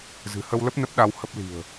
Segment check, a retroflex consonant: absent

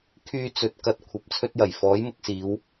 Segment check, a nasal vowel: absent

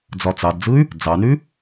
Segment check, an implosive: absent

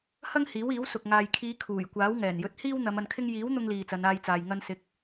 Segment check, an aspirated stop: present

